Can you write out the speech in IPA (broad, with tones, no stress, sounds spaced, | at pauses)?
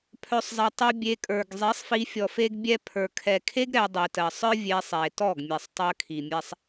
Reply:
pʰ œ˨ sˤ zˤ ɛ˨ tˤ œ˧ bʲ e˧ kʼ ə˞˨ ɡ zˤ i˨˦ sˤ f i˧ fʲ ɔ˨ f e˧ ɡ bʲ ɛ˧ pʰ ə˞˨ kʰ ɛ˨ kʰ e˦ ɡ ɾ ɛ˧ dˤ i˨ t ɜ˨ sˤ ə˞˦ vʲ e˧ sˤ e˨ t ɔ˦˨ ɡ mʲ e˨ sˤ tˤ ɜ˧ kʰ i˨ mʲ ɛ˧ sˤ